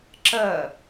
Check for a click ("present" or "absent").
present